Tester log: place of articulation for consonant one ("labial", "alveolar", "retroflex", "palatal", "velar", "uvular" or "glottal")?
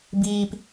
labial